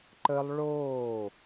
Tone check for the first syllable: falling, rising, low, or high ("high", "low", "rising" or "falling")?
high